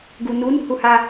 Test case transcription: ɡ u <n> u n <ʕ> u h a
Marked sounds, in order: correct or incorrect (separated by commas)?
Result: correct, incorrect